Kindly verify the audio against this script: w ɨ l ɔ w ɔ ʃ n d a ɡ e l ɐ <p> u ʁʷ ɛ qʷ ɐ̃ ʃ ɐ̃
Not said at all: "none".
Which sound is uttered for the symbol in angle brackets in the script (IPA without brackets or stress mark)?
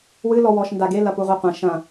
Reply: p